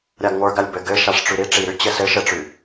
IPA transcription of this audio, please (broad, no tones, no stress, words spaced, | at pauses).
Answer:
ɾʲaɡŋʷə˞ ɡalʲbɘ ɡɘ ʃaʂʈ͡ʂyɾi ʈ͡ʂiɾy t͡ɕɘsɘ ʃɘʈ͡ʂy